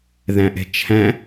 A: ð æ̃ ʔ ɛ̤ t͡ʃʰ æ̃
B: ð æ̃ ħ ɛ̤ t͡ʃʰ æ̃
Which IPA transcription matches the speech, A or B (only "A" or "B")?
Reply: A